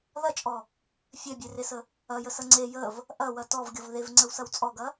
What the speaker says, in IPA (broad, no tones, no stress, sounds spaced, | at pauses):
ð ɐ t͡ʃʼ ɔ | fʲ ɛ bʲ e r e s ə | ɐ j ə s ɐ ŋ͡ǀ e j ə v | ʔ ɐ w ɐ t ɔ v ɡʲ ɔ v ð e v ŋ͡ǀ ə w s ɐ w t͡sʼ ɔ ɡ ɐ